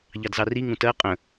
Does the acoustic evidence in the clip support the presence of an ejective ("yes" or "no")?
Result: yes